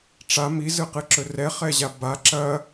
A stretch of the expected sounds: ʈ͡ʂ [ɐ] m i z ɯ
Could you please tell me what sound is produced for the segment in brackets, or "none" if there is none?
a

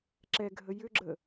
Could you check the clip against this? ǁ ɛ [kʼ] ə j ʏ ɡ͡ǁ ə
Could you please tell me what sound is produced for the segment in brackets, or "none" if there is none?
ɡʱ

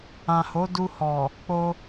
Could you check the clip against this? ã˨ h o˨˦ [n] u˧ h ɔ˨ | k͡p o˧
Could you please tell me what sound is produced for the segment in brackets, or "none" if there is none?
d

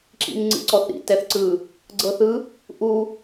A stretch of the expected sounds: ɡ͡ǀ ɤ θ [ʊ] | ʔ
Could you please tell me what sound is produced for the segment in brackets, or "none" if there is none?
ɯ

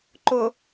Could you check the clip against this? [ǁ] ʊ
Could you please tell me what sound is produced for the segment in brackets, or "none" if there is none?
ǃ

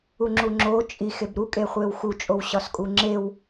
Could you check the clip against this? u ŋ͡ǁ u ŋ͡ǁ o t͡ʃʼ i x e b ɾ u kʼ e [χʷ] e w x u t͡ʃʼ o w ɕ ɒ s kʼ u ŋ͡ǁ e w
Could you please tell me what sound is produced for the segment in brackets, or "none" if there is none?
χʷ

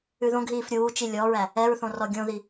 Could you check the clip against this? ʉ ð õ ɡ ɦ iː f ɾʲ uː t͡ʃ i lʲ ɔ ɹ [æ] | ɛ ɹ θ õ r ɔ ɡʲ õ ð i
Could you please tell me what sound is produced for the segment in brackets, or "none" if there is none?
æ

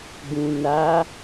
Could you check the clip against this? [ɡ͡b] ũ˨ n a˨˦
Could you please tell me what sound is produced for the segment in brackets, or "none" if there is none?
ɡ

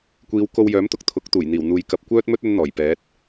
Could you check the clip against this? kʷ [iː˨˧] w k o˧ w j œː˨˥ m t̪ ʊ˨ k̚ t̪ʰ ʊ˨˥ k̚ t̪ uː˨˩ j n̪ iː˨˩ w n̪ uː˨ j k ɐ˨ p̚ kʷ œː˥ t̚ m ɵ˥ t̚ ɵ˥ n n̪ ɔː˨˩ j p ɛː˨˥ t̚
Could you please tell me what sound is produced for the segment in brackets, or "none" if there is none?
iː˨˧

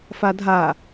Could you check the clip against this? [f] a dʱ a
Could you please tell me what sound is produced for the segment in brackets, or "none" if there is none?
f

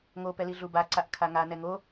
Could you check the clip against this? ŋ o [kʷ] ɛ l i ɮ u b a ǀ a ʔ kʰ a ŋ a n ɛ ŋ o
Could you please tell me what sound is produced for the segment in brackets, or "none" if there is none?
p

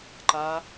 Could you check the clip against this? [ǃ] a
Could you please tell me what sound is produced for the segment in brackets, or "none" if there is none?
ǃ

